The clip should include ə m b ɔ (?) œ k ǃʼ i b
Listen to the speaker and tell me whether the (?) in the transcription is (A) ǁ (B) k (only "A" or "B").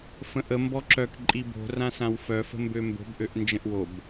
A